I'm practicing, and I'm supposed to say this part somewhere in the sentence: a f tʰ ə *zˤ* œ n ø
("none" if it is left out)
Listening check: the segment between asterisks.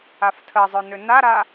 zˤ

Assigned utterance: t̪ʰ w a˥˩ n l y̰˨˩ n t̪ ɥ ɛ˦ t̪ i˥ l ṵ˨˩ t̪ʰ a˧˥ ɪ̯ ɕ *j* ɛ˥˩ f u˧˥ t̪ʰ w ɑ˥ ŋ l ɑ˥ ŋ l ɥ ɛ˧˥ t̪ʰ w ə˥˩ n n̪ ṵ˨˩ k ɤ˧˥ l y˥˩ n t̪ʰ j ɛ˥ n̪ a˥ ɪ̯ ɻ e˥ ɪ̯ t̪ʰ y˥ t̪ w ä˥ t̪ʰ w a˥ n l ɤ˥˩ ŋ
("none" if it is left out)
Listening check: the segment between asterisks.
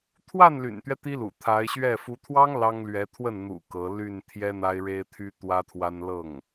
ɥ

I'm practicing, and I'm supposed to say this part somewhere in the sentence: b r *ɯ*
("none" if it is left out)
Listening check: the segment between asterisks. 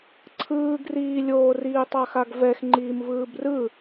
ɯ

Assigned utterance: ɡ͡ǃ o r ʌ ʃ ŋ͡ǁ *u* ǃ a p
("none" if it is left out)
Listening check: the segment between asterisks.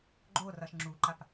u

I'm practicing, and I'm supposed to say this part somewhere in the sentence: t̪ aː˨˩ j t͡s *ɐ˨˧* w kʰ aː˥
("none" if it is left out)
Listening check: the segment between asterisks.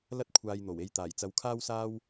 ɐ˨˧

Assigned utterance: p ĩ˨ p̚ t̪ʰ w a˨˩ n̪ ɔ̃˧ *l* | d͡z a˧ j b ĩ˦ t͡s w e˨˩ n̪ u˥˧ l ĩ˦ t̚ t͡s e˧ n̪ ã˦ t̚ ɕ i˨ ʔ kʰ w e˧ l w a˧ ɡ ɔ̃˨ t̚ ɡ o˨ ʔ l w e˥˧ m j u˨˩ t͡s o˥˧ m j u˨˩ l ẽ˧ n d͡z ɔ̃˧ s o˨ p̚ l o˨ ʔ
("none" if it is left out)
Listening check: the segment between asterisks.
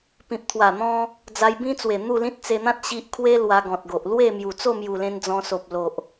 none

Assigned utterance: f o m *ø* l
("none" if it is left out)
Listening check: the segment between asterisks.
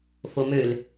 ø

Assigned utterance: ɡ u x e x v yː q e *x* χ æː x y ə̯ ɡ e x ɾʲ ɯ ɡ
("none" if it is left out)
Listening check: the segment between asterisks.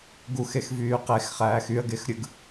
x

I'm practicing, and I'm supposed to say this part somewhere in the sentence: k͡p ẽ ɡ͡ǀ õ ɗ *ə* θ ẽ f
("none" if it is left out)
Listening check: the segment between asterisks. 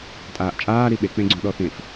ɔ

